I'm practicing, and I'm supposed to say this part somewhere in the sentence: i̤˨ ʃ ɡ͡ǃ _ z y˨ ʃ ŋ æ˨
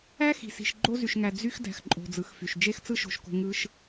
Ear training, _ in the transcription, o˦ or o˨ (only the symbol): o˦